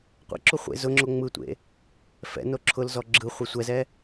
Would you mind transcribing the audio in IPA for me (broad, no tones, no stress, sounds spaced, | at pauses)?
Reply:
qʷ ɛ̰ ǁ u χʷ ḛ z ʊ ŋ͡ǁ o ŋ͡m ɯ tʷ ḛ | f ɛ̰ n o ǁʰ ʊ l z ɔ ɡ͡ǁ ɯ χʷ ɛ sʷ ɛ z ɛ